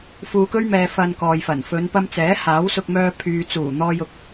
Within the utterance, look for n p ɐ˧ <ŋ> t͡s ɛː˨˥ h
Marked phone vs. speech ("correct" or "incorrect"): incorrect